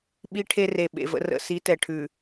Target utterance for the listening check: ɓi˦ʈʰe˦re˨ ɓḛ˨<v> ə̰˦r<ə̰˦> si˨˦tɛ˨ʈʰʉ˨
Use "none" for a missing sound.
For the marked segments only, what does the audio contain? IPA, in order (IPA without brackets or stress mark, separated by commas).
v, ə̰˨